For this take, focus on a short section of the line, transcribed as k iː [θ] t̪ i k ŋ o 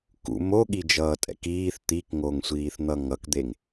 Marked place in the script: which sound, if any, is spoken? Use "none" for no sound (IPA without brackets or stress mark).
θ